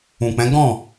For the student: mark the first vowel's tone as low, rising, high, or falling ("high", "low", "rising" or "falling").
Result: low